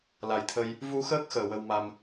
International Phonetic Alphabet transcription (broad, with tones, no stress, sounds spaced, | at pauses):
l a˨˩ j t̪ʰ ə˧ j | v u˧ x əː˦˥ k̚ x əː˨˩ w ə˧ w m a˧ m